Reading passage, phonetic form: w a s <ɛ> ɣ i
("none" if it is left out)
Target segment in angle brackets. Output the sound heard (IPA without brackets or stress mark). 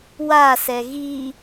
ɛ